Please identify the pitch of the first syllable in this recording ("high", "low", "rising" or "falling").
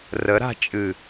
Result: rising